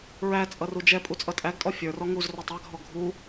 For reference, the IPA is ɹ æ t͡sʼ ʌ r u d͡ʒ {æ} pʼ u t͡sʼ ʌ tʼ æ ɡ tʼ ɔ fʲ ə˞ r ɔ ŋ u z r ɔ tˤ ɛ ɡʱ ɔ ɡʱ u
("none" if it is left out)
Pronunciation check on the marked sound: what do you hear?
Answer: ɛ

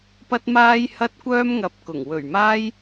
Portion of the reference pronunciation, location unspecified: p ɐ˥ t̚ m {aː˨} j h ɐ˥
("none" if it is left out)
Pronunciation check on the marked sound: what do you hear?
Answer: aː˥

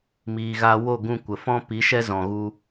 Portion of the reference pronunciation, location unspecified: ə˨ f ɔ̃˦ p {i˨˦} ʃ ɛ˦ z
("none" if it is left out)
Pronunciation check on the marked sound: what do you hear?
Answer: i˨˦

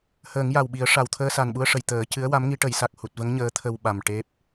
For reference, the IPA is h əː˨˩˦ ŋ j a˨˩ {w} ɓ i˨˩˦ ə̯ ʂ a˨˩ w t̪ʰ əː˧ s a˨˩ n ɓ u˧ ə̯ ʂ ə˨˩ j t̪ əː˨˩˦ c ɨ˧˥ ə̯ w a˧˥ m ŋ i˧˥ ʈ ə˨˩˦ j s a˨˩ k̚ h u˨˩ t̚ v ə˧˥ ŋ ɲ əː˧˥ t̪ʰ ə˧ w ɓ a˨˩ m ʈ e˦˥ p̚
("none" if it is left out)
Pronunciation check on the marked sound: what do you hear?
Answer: w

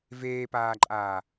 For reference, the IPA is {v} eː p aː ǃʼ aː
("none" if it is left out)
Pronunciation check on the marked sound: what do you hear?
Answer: v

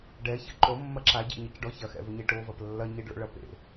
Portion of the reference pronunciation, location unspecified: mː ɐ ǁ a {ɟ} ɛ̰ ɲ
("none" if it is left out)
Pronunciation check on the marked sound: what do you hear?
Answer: ɟ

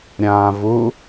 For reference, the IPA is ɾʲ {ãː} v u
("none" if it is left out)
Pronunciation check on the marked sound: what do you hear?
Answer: ãː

